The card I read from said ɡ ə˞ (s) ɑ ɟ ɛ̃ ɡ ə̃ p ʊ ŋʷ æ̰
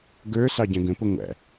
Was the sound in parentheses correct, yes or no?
yes